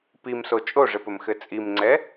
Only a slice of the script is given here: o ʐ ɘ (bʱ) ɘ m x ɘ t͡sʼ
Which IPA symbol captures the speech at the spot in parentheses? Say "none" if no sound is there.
p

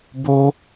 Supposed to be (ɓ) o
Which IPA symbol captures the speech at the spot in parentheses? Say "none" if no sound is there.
b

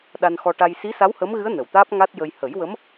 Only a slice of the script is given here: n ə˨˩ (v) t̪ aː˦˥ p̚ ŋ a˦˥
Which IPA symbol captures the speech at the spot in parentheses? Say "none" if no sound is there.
w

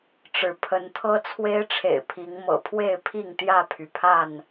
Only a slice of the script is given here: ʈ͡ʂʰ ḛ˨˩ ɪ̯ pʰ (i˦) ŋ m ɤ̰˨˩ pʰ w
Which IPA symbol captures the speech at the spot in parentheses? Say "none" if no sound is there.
i˨˦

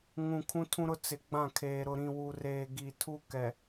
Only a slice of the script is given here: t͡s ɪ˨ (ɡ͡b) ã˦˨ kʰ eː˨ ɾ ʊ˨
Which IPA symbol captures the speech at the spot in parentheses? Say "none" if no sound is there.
ɡ͡b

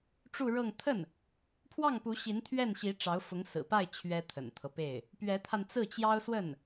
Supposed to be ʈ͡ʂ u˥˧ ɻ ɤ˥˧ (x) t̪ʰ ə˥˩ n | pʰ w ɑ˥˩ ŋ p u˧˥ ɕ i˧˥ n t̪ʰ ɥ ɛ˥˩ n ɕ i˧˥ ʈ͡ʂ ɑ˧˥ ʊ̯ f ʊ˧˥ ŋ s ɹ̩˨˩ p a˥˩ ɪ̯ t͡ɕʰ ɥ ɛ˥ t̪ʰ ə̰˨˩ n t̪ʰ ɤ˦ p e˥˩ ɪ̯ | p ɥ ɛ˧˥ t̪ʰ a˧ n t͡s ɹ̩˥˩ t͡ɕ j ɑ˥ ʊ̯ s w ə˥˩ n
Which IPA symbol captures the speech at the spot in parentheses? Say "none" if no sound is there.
ŋ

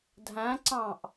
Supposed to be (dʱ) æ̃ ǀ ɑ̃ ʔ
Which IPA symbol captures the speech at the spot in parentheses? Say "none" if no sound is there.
dʱ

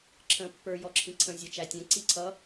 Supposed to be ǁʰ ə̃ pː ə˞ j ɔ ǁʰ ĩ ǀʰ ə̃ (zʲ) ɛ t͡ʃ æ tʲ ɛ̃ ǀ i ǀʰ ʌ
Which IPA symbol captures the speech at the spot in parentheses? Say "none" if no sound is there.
zʲ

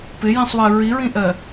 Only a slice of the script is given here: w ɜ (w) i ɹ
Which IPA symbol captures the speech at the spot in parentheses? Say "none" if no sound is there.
ɹ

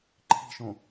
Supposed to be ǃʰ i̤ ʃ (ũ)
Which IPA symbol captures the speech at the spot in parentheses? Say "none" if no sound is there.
õ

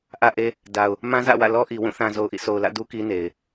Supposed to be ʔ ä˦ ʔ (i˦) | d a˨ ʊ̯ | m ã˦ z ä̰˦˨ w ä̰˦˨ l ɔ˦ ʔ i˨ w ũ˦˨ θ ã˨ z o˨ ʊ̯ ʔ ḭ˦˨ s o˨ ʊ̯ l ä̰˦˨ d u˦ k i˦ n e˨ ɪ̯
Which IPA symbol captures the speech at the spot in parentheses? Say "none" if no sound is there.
e˦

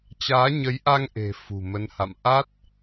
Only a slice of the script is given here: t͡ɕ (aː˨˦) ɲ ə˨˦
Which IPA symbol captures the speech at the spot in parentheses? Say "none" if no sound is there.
aː˨˦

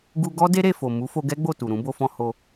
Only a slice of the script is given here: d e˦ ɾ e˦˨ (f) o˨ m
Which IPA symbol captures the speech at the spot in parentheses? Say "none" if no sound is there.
f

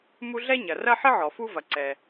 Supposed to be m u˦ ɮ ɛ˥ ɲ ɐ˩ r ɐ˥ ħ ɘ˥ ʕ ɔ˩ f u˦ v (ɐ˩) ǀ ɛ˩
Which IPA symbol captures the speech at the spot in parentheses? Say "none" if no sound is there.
ɐ˩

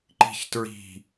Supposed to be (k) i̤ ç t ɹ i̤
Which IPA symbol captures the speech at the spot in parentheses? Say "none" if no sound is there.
ǃ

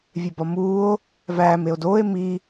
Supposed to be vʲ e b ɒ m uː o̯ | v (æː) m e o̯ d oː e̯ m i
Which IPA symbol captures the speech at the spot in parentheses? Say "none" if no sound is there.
æː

